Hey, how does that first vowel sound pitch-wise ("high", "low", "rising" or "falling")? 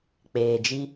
low